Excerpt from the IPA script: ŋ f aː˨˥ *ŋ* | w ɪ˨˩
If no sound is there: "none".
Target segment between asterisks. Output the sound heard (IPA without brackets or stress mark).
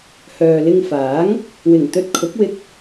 ŋ